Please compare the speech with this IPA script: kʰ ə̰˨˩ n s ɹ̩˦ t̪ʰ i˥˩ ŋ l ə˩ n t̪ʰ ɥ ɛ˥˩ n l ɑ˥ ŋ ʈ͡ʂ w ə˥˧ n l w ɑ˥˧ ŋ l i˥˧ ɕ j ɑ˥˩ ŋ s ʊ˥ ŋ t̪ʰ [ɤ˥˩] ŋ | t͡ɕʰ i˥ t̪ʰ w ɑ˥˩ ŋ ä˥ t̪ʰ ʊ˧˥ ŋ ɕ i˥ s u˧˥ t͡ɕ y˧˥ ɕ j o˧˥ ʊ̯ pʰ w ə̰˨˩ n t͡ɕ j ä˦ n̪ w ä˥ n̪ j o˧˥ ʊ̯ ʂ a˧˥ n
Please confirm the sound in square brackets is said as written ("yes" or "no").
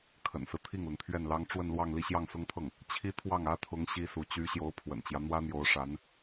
yes